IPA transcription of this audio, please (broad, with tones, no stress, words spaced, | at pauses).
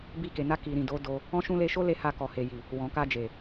bi˧ke˨na˧ ki˨ɾĩ˨ do˨˦do˧ | ɔ̃˦ʃũ˦ le˧ʃo˦le˧ ha˧kɔ˨he˨ji˨ | wɔ̃˨ka˧d͡ʒe˨